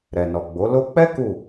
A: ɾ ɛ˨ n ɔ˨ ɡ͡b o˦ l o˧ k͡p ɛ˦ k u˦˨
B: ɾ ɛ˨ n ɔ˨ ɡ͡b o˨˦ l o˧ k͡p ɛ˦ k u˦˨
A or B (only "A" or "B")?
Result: B